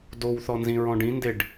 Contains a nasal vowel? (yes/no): yes